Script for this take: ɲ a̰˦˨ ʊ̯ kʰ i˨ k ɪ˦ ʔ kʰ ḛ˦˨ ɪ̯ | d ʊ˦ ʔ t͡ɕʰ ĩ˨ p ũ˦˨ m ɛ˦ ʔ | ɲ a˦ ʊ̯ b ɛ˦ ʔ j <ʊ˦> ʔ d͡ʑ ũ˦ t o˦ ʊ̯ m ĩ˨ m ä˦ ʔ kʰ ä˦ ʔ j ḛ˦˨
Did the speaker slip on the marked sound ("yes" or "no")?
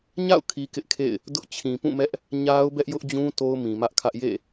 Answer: no